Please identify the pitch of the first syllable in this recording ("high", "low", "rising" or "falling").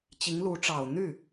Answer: rising